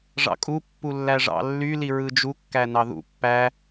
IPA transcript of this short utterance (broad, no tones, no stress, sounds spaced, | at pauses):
ʐ ɑ̰ kʼ u pː u lː æ ʐ ɑ̰ lː y l i ɹ ɯ d͡ʒ u kː æ n ɑ ð ṵ pː æ